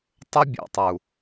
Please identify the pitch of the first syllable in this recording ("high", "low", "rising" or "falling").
high